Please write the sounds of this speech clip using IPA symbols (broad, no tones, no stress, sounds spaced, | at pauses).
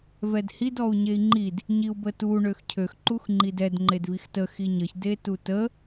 v ɛ d h i d ɔ u̯ ɲ e i̯ ŋ͡ǃ i d | ɲ i u̯ b ə t u ɳ ø x cʰ ø x ǃ u x ŋ͡ǃ i d ɛ d ŋ͡ǃ e d v i x t ə x i ɲ ə ç d e t u t ə